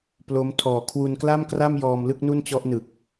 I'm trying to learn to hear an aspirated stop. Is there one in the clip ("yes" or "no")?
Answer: yes